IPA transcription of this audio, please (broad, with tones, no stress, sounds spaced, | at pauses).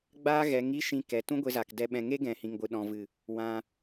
ɡ͡b aː˦ ɣ ɛ˨˦ ŋ i˦ ʃ ĩ˧ k ɛ˨ t ũ˦ ɡʷ e˧ z aː˨ k d ɛ˧ ɓ ɛ̃˧ ŋ e˦ ɡ ɛ̃˨ h ĩ˨ ŋ ɡʷ ɨ˨ ɗ ɔ̃˨ v ɨ˨ | w ã˧